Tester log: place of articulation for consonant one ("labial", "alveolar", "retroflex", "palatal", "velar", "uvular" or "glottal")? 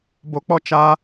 labial